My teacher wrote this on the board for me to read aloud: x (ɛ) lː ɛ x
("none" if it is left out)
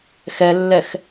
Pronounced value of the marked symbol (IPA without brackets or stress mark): ɛ